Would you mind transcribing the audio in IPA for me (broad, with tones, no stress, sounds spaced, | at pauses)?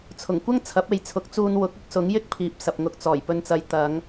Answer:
t͡sʰ ʊ˨˩ ŋ kʷ ɐ˥ ŋ t͡sʰ ɐ˨˥ p̚ e˨˧ j t͡sʰ ʊ˨˥ k̚ t͡s uː˧ n w ʊ˨˥ k̚ ʊ˥ k̚ s ʊ˨˥ ŋ j ɪ˥ k̚ pʰ iː˨ p̚ s ɐ˨ p̚ ŋ ʊ˧ k̚ t͡s ɔː˨˩ j p ɵ˨ n t͡s ɐ˨˧ j t̪ ɐ˨˧ ŋ